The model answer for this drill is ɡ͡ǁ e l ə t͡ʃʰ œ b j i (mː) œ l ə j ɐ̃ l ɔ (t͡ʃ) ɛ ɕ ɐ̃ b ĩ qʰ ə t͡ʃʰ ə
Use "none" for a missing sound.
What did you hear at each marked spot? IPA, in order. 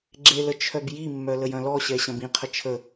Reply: mː, ɕ

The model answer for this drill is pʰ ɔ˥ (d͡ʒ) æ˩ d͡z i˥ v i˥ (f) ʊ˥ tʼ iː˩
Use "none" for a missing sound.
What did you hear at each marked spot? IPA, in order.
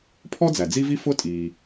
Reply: d͡z, f

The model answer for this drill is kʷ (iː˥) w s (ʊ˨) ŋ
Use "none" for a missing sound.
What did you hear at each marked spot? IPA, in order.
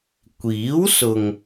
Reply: iː˨˥, ʊ˨

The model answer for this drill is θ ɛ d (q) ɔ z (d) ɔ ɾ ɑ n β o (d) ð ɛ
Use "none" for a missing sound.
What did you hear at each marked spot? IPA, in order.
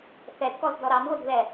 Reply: k, d, d

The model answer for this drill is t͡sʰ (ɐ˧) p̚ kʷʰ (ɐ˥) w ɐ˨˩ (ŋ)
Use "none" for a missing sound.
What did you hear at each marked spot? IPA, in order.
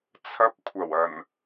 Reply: ɐ˧, ɐ˨˩, n

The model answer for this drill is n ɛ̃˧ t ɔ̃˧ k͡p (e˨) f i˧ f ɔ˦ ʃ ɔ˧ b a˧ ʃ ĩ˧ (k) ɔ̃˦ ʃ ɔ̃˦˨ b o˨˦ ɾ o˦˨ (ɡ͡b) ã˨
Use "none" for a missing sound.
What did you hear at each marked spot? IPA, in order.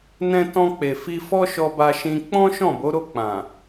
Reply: e˨, k͡p, k͡p

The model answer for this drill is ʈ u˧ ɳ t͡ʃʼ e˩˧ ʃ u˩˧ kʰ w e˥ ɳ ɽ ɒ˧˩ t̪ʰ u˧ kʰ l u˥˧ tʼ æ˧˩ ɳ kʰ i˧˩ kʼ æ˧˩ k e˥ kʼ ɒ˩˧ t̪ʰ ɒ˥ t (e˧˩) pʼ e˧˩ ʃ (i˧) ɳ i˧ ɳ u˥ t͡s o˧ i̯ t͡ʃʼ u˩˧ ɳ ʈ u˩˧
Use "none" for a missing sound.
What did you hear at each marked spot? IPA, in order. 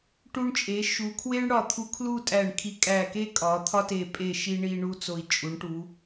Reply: e˧˩, i˧

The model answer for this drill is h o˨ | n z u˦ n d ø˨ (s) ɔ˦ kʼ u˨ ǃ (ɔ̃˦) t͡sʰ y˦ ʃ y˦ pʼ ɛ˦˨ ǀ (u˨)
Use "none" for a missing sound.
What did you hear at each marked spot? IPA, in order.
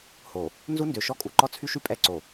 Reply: ʃ, ɔ˦, o˨

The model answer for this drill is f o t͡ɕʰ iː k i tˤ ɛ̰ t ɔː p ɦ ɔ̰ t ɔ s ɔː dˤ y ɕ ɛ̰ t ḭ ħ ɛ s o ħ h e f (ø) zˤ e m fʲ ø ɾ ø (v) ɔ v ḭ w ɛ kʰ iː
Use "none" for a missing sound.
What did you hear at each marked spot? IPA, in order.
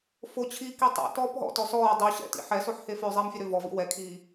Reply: ø, v

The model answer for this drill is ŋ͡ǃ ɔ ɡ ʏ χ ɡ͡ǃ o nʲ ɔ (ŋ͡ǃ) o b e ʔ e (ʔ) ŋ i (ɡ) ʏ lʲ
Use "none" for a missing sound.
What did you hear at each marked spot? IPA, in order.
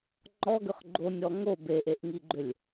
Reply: ŋ, ʔ, ɡ͡ǃ

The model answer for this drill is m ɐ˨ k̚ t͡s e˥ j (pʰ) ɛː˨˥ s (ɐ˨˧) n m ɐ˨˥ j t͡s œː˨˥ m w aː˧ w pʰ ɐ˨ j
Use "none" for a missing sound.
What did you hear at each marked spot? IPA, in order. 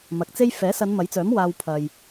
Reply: f, ɐ˨˧

